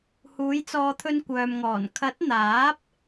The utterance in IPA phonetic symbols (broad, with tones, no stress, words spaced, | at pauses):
huː˨˥j t͡sɔː˨˧t̪ʰɵ˧n kʷœː˨mŋɔː˨˩n kʰɐ˨˥t̚n̪aː˨˥p̚